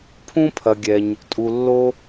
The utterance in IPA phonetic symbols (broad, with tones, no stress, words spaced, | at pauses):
pʰũ˥pʰɐ˨ɡʲɛ˨ɲ | tʼu˨lːo˦